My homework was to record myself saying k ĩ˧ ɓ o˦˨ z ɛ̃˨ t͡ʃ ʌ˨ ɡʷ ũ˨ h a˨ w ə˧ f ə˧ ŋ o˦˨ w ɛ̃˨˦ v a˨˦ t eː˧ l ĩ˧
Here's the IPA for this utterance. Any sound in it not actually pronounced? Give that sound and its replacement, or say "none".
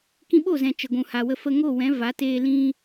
ʌ˨ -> ə˨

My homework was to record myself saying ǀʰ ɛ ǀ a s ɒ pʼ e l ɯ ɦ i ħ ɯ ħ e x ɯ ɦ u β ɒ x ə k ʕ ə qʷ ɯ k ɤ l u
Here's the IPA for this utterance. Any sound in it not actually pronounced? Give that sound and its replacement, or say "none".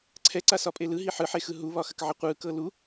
none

